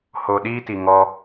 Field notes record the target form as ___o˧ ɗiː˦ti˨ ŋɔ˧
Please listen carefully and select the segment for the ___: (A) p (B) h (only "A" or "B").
B